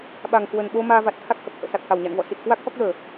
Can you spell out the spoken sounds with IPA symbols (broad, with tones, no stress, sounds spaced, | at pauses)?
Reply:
ɓ a˨˩ ŋ k w ə˨˩ n ɓ o˧ m aː˧ v a˨˩ t̚ t̪ʰ a˦˥ k̚ h ə˨˩ p̚ h ə̰ː˧˨ s a˨˩ k̚ h a˧˩ w ɲ a̰˧˨ n v ɔ̰˧˨ s i˨˩ t̚ k w a˦˥ k̚ x ɔ˦˥ k̚ l əː˧˩˨